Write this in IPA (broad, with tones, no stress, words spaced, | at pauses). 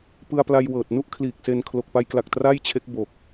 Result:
pɯ˧a̯pla˧jwɤː˨˩t̚ nu˥˩ʔ kʰliː˨˩k̚se˧n kʰlo˨˩k̚pa˧jkla˨˩k̚ tra˥˩jt͡ɕʰe˦˥k̚ bo˨˩k̚